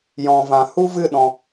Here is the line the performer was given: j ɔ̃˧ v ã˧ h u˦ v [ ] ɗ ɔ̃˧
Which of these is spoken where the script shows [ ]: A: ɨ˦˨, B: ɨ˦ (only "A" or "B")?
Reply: A